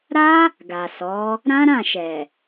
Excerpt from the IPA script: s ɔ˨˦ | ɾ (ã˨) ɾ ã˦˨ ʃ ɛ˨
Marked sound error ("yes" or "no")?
yes